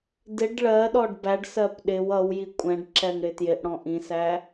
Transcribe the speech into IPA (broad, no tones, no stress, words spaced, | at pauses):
dɪɖ ɭɜɗɔɖ bæɖsɜp ɗɪw ʌwji kʷʼɛ̃ɖǁɛŋ ɽɪtjɪʔɽɔ̃ ʔĩsæ